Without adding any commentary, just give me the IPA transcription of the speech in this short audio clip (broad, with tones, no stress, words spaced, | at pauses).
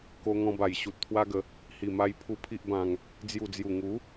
ko˧ŋɔ̃˧ba˨˩j ɕu˨t̚t̪ʰwa˦ɡə˨˦ | hi˨˩ma˧jpʰu˧ pʰi˦ʔbã˧ŋ | d͡zju˨˩d͡zju˨˩ŋu˨˦